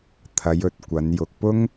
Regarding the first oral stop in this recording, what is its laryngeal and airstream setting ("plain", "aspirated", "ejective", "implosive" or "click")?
aspirated